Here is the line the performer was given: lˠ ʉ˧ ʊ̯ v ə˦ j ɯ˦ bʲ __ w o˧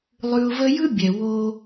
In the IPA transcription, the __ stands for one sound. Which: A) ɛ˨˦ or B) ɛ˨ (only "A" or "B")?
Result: B